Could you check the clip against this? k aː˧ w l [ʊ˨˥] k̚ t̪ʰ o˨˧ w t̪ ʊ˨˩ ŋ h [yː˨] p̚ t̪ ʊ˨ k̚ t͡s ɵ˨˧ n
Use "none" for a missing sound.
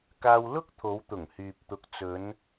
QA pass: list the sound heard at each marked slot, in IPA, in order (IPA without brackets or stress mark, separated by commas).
ʊ˥, yː˨